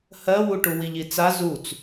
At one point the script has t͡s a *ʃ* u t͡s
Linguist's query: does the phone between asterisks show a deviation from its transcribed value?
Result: yes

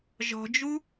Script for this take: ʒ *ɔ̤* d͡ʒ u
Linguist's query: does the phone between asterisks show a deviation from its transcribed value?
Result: no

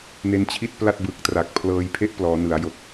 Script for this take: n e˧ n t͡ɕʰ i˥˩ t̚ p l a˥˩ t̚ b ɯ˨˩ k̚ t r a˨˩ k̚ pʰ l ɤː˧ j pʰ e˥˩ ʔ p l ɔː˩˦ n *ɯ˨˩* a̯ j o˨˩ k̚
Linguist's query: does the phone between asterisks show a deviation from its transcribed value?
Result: yes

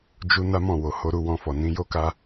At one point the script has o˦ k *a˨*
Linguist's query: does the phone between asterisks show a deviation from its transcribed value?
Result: yes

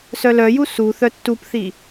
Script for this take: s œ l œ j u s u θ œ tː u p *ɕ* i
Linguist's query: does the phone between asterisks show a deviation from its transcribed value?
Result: yes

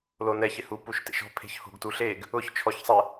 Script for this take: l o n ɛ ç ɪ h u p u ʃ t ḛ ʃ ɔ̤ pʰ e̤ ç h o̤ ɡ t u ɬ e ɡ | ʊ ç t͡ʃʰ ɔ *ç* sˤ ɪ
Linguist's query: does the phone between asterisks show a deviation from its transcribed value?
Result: no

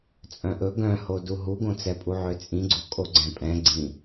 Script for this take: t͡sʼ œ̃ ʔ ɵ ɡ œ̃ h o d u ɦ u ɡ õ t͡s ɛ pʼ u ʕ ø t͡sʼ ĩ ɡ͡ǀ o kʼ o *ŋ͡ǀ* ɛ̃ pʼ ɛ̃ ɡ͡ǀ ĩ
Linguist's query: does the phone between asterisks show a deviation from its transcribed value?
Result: yes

